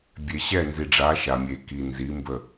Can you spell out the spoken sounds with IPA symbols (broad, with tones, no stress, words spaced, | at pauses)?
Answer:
bʲe˨ ɕɛ˦˨nzi˨ɖ͡ʐa˨˦ ʃa˨mʲe˨ki˨ nzi˨˦mbə˦˨